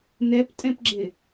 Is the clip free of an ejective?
no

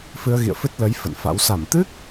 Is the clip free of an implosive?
yes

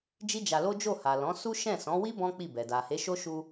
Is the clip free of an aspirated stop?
yes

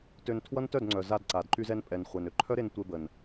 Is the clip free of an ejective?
no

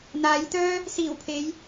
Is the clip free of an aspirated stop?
no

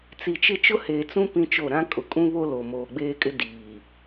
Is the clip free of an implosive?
yes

